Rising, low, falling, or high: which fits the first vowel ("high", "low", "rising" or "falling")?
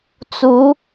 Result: rising